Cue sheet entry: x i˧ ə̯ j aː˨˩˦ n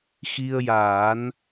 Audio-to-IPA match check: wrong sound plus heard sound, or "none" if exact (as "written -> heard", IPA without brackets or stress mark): none